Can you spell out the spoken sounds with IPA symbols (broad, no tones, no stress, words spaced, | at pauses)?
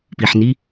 piħni